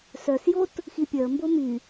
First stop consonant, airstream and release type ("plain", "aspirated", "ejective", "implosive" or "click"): plain